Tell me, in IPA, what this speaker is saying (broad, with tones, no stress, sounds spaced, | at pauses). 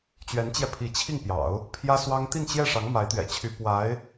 t͡ɕ ɥ ɛ˧˥ n t͡ɕ j ɛ˧ pʰ i˧˥ t͡ɕʰ i˥˩ ŋ p j ɑ̰˨˩˦ ʊ̯ | pʰ j ä˥ s w ɑ˥ ŋ t̪ i˥˧ n t͡ɕ j ɛ˥˩ ʂ ɑ˧˥ ŋ m a˧˥ ɪ̯ t̪ ɥ ɛ̰˨˩ t͡ɕʰ y˧˥ p w a˧˥ ɪ̯